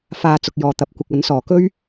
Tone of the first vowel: low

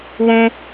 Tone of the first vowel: high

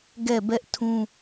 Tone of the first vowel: falling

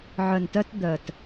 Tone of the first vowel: low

